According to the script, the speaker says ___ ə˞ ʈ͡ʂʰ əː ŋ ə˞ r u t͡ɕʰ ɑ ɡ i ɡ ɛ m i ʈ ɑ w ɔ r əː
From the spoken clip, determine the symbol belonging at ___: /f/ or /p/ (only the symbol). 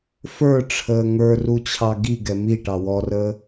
f